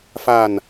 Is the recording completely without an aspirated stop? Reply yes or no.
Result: yes